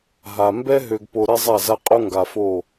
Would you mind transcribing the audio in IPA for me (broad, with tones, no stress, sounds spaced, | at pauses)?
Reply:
ɦ a˨ m b ɛ˦ ɦ ø˨ ɡ p o˨ ɾ ɛ˦ zˤ a˦˨ z a˦ qʼ o˦ ŋ ɡ a˨ f o˦˨